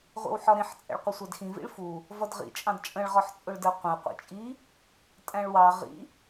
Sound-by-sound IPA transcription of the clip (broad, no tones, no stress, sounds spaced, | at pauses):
ʁʷ ḭ w ħ ɒ ɾ ĩ ħ t͡sʼ ɛ̰ ɭ qʷ ɪ sʷ æ d x ĩ v ḭ ɭ f u | v ʌ d ʁ ḭ t͡ʃʼ ɑ̃ d t͡ʃʼ ə̃ ɭ ʁ ɒ ħ t͡sʼ ʊ ɭ d ɜ qʷ ə̃ e̯ qʷ ḭ t͡ʃʼ i | tʼ æ̃ ɭ w ɑ ʁ ḭ